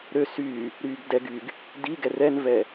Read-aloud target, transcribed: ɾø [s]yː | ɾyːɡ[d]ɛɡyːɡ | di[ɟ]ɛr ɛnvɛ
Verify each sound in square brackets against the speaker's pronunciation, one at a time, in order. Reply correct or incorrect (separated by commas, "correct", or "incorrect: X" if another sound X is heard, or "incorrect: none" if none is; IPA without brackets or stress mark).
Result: correct, correct, incorrect: ɡ